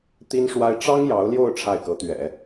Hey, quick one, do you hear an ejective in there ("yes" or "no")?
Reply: no